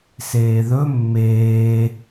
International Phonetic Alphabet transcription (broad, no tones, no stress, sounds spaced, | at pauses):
s eː ð ɵ mː eː